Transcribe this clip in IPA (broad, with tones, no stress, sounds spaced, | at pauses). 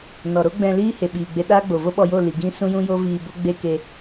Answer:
n ɔ˨ ɾ o˦ ɡ͡b ɛ̃˧ l iː˦ h e˨ ɓ iː˨ ɡ͡b e˧ ɗ aː˦ ɡ͡b o˨ v o˦ ɓ ɔ˧ j o˦˨ l i˨ ɡ ĩ˦ s ũ˦ j ũ˦ j o˦ v iː˧ b o˦ ɡ͡b e˦ k e˦